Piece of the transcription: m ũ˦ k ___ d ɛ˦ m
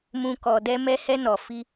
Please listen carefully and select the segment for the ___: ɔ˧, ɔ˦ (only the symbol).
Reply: ɔ˧